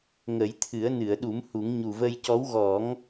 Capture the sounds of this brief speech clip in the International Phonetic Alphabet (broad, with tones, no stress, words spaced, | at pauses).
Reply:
ŋə˨˩˦jt̪ʰɨ˨˩˦ə̯nɨ˨˩˨ə̯ɗu˨˩˦m hu˨˩˦ŋ ɲu˨˩və˧jcɔ˧˥w ɣɔ˨˩˦ŋ